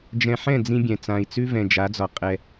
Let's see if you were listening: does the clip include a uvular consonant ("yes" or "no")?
yes